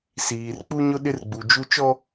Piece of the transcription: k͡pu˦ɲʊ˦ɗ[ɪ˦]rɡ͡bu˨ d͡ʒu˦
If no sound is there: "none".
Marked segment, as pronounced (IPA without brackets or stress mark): ɪ˦